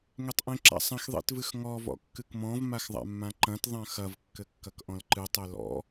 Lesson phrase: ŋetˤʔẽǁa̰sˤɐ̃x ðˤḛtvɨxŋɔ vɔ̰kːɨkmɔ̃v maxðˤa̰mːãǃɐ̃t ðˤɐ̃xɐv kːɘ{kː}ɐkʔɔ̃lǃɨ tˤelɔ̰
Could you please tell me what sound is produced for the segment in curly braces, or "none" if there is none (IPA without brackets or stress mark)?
kː